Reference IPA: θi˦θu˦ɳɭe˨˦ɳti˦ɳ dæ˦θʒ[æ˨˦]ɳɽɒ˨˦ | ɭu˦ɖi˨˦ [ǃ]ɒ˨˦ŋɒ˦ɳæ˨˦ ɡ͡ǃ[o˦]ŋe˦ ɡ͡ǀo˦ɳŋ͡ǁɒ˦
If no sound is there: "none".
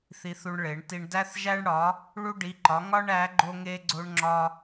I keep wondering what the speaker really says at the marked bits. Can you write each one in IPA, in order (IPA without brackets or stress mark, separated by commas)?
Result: æ˦, ǃ, o˦